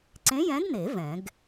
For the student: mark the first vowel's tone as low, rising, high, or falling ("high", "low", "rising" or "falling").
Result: rising